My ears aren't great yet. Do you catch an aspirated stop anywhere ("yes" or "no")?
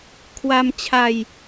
yes